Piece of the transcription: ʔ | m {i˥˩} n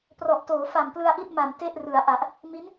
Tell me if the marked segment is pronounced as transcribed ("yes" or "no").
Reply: no